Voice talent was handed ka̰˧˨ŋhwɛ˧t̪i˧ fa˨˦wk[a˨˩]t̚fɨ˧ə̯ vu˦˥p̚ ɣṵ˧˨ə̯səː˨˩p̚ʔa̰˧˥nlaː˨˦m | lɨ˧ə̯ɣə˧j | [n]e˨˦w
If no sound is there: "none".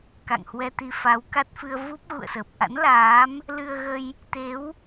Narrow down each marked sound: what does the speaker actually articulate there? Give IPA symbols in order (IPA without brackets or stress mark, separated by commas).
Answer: a˦˥, t̪